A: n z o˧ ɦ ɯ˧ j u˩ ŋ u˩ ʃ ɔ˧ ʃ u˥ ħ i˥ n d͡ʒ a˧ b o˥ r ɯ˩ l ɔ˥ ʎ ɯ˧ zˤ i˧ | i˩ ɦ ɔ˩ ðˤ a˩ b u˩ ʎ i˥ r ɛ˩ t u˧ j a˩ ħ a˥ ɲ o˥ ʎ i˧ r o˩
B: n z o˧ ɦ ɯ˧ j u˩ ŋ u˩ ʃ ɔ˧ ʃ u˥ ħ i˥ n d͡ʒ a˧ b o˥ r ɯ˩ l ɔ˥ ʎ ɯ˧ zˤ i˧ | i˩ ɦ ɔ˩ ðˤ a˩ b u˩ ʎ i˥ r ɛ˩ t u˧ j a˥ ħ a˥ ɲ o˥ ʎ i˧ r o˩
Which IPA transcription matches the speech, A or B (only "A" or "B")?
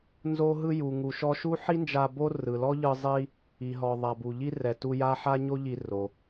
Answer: B